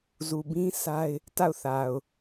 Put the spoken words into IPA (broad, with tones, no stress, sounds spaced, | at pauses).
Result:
z u˨ b ĩ˦ sʰ a˦ ɪ̯ | t a˦˨ ʊ̯ θ a˨ ʊ̯